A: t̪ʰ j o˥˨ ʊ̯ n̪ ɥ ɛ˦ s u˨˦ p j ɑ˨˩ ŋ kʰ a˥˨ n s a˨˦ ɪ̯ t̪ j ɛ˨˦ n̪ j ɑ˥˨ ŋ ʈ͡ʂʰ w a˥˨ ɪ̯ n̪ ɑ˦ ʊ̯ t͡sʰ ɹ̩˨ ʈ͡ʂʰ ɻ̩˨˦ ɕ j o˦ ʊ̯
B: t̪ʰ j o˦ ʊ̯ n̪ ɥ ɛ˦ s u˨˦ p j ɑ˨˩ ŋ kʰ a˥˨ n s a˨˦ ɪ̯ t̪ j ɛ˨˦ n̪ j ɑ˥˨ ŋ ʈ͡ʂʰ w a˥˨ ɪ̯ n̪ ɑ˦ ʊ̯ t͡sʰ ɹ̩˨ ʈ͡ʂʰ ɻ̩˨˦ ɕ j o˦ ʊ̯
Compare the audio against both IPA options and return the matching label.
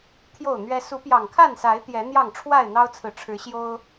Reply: A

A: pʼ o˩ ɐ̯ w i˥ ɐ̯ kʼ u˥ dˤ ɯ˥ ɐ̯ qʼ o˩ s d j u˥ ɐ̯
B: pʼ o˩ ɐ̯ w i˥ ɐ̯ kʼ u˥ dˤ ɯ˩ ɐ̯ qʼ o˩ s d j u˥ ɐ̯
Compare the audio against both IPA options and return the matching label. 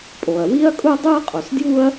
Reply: A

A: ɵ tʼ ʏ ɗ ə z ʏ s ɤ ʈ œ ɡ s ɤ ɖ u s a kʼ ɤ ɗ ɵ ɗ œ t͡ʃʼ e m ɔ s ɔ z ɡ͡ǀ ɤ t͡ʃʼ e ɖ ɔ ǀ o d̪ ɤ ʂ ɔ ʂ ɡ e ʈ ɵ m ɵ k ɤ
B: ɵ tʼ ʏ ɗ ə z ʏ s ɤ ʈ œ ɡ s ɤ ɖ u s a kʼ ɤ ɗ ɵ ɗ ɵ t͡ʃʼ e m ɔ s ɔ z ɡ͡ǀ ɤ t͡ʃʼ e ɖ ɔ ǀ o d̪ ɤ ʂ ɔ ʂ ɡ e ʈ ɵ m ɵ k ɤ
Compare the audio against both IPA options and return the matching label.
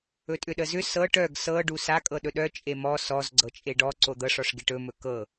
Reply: A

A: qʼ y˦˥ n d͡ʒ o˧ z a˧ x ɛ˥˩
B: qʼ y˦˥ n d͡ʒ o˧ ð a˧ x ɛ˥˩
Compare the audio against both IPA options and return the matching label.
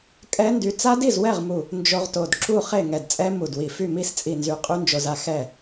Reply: A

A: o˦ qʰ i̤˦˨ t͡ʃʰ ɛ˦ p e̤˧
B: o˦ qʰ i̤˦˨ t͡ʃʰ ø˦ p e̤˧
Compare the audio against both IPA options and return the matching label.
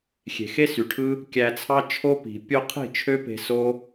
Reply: B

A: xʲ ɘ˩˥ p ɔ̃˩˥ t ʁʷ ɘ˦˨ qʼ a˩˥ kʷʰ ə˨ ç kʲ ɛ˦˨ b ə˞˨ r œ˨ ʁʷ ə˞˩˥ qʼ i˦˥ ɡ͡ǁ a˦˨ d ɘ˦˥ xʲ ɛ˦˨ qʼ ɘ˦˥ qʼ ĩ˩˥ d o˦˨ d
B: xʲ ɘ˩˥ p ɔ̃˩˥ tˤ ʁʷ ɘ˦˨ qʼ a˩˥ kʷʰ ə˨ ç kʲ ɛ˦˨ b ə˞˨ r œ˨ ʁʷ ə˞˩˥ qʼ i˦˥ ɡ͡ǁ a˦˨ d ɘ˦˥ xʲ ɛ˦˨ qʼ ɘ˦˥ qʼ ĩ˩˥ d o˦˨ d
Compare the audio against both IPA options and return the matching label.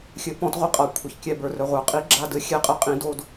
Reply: A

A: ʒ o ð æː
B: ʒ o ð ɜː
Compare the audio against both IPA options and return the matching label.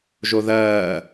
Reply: B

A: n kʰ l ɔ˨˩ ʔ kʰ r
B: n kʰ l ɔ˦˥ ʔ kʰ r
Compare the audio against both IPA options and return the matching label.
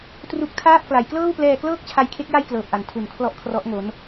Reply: B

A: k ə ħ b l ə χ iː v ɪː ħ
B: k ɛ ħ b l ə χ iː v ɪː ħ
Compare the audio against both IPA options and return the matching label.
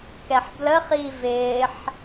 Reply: B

